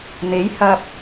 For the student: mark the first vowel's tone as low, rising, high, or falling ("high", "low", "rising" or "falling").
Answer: rising